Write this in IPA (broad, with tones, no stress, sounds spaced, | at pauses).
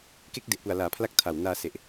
k e˦˥ k̚ d e˨˩ ʔ p u˨˩ a̯ l aː˩˦ pʰ l a˦˥ k̚ tʰ a˨˩ w n aː˧ s e˨˩ ʔ